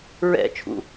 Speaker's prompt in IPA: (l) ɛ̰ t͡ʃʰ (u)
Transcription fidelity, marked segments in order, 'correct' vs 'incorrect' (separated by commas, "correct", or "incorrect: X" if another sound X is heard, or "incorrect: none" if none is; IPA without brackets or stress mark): incorrect: ɹ, incorrect: ṵ